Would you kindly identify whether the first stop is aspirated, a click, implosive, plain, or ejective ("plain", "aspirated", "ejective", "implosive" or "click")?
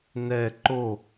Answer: click